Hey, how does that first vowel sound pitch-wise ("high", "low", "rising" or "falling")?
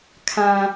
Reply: low